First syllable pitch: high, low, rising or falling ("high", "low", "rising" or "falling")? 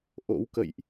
rising